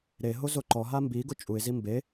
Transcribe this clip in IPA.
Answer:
ɾ e ɦ o z o ǃ ɔ ɦ a m b i ɡ ʊ t͡ʃʼ u ɪ̯ z i m b e

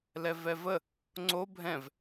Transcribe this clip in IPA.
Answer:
l ɛ v ɛ v ə | ŋ͡ǀ o bʱ ɛ̃ v

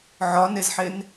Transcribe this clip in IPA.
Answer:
ʕ ɒ n e z ħ e n

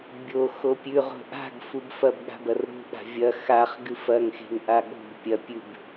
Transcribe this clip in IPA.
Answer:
bʲ o x o pʲ ʉ ʁ o̤ ʔ a̤ ɡ f u b f ɐ b ɠ a̤ b ɐ r ɾ o̤ ɠ a̤ vʲ ɐ x a χ ɡ ɨ f ɐ ŋ x e̤ ŋ ʔ a ɠ o̤ pʲ ɐ pʲ ʉ b

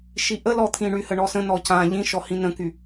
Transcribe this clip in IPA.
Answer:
ʃ i ʔ ə l ɔ t̪ʰ ĩ ɳ y h ə ɳ ɔ s ə̃ n ɔ c ã ʎ ĩ ʃ ɔ h ĩ n ə̃ k y

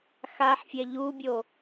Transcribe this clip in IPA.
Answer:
x a ħ fʲ ɛ ʎ u bʲ o

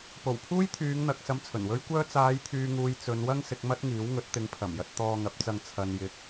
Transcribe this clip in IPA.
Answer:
p o˨˩ w pʰ uː˥ j t̪ʰ yː˨˧ ŋ n̪ ɐ˨ k̚ s ɐ˧ m t͡sʰ ɵ˨˩ n w ɵ˥ ɥ kʷ œː˥ t͡s aː˨˧ j t̪ʰ yː˨ ŋ uː˨ j t͡s ɵ˨˧ n w ɐ˥ ŋ s ɪ˨˥ k̚ m ɐ˥ t̚ ŋ iː˨˥ w ŋ ɵ˨˥ t̚ t̪ ɪ˨˥ ŋ pʰ ɐ˨˩ m j ɐ˧ t̚ t̪ ɔː˧ ŋ ɐ˨˥ p̚ t͡s ɐ˧ ŋ t͡sʰ ɐ˨ n j ɪ˨˥ k̚

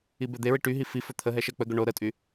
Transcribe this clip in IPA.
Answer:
i b ɛ d̪ e ɹ i ʈ y ɦ i f i f ɵ t̪ʰ ə ɦ ɛ ʃ ɛ k͡p ə ɡ ɵ ɳ o ɾ ə tʼ y

